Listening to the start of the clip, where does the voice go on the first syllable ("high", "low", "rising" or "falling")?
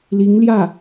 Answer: rising